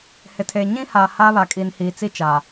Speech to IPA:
h ɪ˨ tʰ eː˨ ɲ ĩ˦ h aː˨ h aː˦ β a˨ kʼ i˨ n h iː˨ t͡s i˦ t͡ʃ a˨

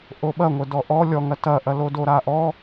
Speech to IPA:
ʔ o ɓ ɐ ŋʷ ə d ɔ ʔ ɔ lʲ ɔ ŋ ɐ t ɐ ʔ ɐ l o d o ɾ a ʔ ɔ

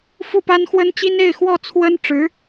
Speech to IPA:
f u˥˩ p a˥ n x w ə˥ n t͡ɕ i˥ n e˥˧ ɪ̯ x w ɔ˥˩ t͡sʰ w ə˥ n ʈ͡ʂ ɻ̩˧˥

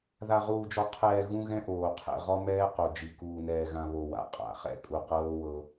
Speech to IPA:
ð a˨ ʁ uː˨ d͡ʒ ɔ˨ qʰ ɛː˨ ɣ ũ˦ ɣ ɛ̃˦ ʔ oː˨ qʰ ɛ̰˨ ʁ ɔ˦ m ɛː˦ q o˨ d͡ʒ i˨ k uː˨ n ɛː˨ ɣ ã˨ β o˨ w a̰˨ qʼ a̰˨˦ χ ɛ̰˦ kʼ u˨ q ɤː˦ w ɤ˦

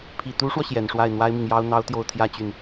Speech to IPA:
pʰ i˨˩ t̪ u˧˥ ʂ w ɔ˧ ɕ j ɛ˨˩ n ʂ w a˥˩ ɪ̯ n̪ w a˥ ɪ̯ m i˨ ŋ j ɑ˥ ʊ̯ n̪ ɑ˥ ʊ̯ t̪ j o˥˧ ʊ̯ t̪ʰ j ä˥˧ t͡ɕ y˥˩ n

